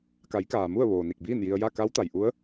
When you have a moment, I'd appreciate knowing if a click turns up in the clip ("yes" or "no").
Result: no